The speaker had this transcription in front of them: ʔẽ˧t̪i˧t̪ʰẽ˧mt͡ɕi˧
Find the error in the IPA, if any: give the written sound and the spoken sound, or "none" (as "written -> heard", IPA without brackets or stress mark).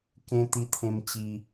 ʔ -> k